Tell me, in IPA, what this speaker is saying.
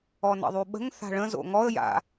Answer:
ɔnə̰ðˤyɓə̤ŋ θa̤ɭə̃zo̰ ŋɔə̯ ja̰

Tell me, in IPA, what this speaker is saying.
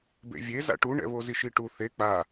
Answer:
bḛvʲe za̰ʈuɳɛ̰ βoziʃiʈu θe k͡pa

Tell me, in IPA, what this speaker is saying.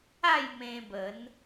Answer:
a˥˧j mẽ˧bə˨˦n

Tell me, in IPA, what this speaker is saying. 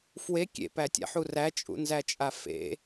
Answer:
fwe kʲḛpætʲa̰ħu ræt͡ʃʼṵnzæt͡ʃʼa fḛ

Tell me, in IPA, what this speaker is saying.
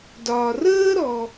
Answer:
dɒː˨rəː˥ɾɔ˨

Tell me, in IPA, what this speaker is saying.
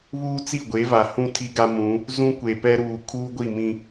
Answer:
βuː˦t͡si˦˨ɡʷe˨˦va˨ hũ˦ tʰi˦ɡa˦mũ˨˦ | zũ˦kʷe˨pɛ˦ɾuː˨ kʰuː˦ɡʷi˦˨mĩ˦

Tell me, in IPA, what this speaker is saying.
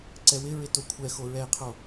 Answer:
ǀɛwɪɹɪ tokʷʰɛxo ɹɛɪ̯qʰo

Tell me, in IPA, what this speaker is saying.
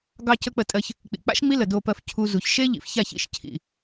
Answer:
ɡɑ˧cə˧ k͡pə˧tʼɜ˧ç | k͡pḭ˨ k͡pa̰˦ʃ ŋ͡mi˦lə˨ do˧pɜ˧f cʰu˧zu˨ç ʃe˦ ʎḭ˨fça˦˨ç ḭ˦˨ʃ cʰḭ˨

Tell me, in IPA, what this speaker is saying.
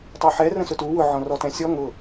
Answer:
tˤyħɛ rə̃sʊtu wʊ ʕɔ̃rɔtɛ̃sʲɔ ŋʊ

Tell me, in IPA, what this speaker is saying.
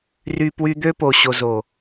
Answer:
ry˧pwy˧d̪ø˦po˨ ɕo˨zo˨

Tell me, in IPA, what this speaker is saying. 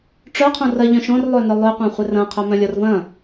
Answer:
ʈ͡ʂœqʰõ rɐʎœ̃ ʃõrlˠønœ lˠøqʷœ̃χʷɪr ɐ̃qʰœmœ̃lʲɔr vɐ̃

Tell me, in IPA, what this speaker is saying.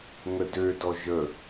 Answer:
ŋədødɔ ʒə

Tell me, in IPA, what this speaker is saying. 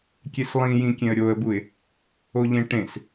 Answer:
kʲeslˠĩjĩ kʲẽə̯ɾʲoə̯buɪ̯ | oʎẽʈẽs

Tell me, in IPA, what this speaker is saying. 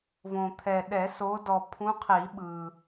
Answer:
võ˨t̪ʰɛ˨ ɗɛ˨˩˦so˨˦dɔ˨ pʰũ˨˦qʰi˨˩˦ɓɯ˨

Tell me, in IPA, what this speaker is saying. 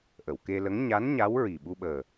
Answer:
ʔə˨˩˨wke˧lə˧˥ŋ ɲa˧˥n ɲa˧˥w ɹi˨˩ ɓu˧ɓəː˨˩

